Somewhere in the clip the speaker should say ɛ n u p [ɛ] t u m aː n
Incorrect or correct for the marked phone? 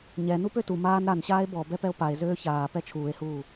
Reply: incorrect: ø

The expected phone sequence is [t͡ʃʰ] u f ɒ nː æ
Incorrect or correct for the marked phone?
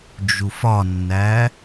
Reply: incorrect: d͡ʒ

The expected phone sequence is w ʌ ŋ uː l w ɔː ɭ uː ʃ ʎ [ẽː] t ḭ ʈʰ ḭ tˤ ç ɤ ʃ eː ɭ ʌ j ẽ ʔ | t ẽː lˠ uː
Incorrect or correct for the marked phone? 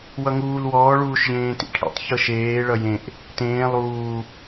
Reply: correct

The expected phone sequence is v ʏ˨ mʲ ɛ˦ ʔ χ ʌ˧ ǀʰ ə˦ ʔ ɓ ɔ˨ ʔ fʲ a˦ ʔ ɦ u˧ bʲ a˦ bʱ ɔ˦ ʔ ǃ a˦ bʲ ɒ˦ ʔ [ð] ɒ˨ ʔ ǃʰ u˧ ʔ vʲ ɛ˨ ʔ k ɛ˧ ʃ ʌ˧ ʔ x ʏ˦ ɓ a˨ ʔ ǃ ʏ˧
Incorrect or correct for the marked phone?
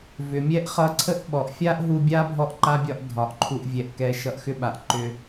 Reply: incorrect: dʱ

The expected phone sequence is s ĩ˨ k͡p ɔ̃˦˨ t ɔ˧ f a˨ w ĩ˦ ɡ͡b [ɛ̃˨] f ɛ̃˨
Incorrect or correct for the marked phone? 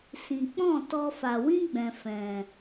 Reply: correct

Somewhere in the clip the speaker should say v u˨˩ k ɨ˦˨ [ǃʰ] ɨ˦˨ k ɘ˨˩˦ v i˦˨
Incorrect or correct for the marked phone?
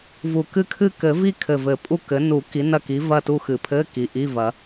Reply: incorrect: kʰ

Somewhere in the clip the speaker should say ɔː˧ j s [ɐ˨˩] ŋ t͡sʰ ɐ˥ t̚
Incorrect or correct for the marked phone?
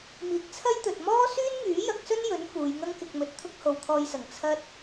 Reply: correct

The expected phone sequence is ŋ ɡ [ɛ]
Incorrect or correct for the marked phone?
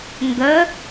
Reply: incorrect: ə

